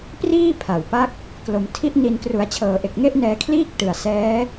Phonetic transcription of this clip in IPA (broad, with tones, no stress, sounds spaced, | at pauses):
p r iː˥˩ pʰ a˨˩ w p a˦˥ k̚ | k l o˩˦ m tʰ i˦˥ ʔ n i˧ n k r u˩˦ a̯ t͡ɕʰ ɤː˩˦ ʔ e˨˩ k̚ ŋ e˥˩ ʔ n ɛː˧ kʰ l iː˥˩ k̚ t ɯ˨˩ a̯ s ɛː˦˥